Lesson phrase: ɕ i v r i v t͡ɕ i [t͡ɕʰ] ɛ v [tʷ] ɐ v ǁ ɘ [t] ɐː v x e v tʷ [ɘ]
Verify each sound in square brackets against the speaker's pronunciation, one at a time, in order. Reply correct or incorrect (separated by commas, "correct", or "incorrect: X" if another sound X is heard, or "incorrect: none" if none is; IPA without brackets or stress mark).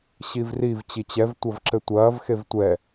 incorrect: t͡ɕ, correct, incorrect: tʷ, incorrect: ɛ